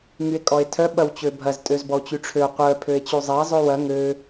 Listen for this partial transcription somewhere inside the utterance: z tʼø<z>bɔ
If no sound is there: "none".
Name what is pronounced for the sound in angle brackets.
z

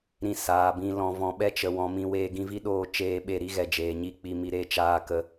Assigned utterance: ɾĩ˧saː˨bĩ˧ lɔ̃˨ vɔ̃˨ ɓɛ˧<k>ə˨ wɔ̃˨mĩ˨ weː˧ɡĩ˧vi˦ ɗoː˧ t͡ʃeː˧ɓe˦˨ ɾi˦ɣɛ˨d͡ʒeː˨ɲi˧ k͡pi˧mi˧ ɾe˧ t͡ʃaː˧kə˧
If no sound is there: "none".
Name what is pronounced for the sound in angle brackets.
t͡ʃ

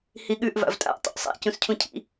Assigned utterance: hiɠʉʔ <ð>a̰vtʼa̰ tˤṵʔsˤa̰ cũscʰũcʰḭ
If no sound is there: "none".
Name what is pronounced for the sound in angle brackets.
v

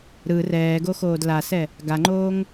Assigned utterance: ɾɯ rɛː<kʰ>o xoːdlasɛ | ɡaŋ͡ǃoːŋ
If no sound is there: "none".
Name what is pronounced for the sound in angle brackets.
ɡ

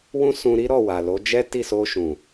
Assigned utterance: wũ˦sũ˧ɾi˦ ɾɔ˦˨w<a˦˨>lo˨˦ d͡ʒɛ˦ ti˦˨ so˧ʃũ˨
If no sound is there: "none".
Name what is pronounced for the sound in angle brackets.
a˨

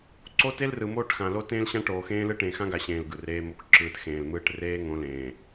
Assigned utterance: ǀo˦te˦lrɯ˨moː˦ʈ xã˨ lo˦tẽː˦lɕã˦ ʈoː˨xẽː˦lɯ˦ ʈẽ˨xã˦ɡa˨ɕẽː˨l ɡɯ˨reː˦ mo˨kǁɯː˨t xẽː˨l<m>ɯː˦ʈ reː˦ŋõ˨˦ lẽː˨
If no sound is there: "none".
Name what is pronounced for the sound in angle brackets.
m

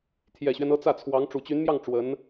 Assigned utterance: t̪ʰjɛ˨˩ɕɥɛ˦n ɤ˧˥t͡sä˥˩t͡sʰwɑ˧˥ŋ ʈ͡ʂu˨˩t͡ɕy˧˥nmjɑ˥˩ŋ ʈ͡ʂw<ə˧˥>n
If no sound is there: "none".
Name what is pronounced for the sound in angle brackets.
ə˧˥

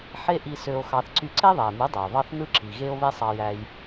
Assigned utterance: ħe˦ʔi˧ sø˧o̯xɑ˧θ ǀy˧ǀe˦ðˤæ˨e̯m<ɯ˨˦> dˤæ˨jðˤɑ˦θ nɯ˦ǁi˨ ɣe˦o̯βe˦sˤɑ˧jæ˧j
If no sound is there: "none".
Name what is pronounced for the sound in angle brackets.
ɯ˨˦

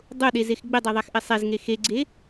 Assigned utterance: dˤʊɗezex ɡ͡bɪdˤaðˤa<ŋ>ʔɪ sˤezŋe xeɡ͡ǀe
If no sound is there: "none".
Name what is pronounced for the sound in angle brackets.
x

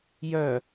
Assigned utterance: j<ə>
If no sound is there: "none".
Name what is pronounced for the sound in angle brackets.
œ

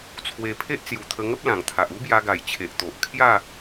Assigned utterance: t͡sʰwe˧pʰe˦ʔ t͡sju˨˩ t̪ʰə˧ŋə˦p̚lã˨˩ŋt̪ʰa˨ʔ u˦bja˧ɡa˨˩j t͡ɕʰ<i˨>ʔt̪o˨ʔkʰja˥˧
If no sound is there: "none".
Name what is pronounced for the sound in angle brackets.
e˨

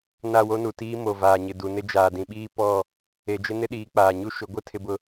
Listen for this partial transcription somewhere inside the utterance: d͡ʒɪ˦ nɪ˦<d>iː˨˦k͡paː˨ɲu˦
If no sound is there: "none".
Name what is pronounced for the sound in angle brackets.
ɗ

